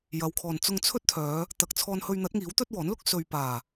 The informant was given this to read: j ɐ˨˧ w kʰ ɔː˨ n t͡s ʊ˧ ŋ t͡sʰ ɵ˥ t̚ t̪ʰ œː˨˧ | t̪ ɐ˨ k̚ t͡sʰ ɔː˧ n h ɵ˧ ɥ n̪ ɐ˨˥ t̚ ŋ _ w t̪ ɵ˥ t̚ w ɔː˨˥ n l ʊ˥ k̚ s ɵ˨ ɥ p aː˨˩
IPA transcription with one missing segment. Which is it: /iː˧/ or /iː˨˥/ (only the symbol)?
iː˨˥